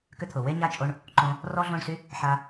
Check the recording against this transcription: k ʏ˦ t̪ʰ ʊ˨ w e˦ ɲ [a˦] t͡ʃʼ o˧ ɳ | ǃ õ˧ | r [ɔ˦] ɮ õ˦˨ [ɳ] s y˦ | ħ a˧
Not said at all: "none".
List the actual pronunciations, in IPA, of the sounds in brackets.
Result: a˦, ɔ˦, ɳ

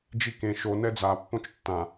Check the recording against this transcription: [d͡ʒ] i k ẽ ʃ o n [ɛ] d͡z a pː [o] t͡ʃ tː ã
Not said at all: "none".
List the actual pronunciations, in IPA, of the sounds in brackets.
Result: d͡ʒ, ɛ, õ

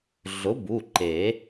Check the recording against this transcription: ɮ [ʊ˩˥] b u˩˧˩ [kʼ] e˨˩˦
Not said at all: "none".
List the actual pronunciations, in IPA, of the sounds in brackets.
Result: ʊ˩˥, ǃ

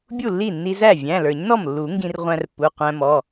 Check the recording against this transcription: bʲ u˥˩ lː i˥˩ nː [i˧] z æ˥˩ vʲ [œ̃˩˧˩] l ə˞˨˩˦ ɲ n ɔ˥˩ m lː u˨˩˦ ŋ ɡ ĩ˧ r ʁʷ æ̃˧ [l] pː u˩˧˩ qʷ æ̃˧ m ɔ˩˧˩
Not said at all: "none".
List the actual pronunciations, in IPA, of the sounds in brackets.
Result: i˧, æ̃˩˧˩, r

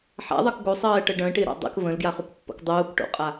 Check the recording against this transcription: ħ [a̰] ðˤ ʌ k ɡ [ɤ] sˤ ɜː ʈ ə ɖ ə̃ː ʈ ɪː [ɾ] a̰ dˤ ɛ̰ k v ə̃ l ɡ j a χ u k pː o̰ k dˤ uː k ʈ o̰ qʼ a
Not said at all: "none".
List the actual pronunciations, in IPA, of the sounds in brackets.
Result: a̰, o, ɾ

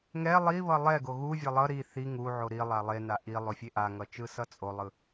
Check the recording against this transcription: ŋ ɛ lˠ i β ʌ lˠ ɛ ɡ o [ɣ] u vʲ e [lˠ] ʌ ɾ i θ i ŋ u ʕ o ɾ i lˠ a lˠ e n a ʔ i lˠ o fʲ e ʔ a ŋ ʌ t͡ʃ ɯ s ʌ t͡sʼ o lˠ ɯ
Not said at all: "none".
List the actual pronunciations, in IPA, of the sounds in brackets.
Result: ɣ, lˠ

